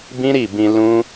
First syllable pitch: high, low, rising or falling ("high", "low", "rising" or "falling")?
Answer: high